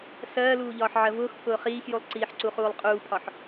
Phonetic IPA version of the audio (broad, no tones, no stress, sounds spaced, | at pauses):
s ɜː l uː ʎ ɒː ħ ʕ ɜ v ʊː x pʰ ʊː χ iː x j u lˠ ǀ iː ħ ǀ u χ uː lˠ qʼ uː pʰ ɒ ħ